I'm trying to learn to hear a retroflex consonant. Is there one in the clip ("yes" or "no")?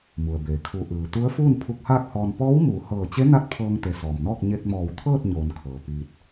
no